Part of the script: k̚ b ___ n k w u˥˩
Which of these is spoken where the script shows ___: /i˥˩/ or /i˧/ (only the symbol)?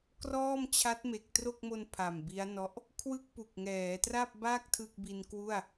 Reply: i˧